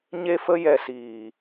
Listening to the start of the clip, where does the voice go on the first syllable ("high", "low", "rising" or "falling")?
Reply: high